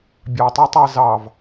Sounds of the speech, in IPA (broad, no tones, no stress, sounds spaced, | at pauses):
bʲ ɑ tˤ o tˤ ɑ z ɑ v